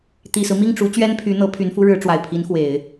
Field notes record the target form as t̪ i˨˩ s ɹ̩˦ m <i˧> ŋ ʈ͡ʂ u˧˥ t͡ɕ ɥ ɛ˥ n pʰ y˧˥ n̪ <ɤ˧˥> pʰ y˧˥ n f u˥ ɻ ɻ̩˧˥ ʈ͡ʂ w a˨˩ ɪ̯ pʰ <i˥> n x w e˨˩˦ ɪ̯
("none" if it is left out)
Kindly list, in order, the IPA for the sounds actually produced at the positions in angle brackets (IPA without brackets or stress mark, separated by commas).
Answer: i˥˩, ɤ˧˥, i˧˥